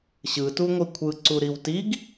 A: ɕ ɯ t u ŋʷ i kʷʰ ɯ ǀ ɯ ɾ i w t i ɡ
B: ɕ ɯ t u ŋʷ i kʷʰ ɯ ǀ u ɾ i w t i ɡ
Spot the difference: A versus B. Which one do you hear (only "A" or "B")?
B